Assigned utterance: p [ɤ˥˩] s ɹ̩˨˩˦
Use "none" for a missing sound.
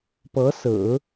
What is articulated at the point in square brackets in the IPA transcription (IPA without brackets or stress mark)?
ɤ˧˥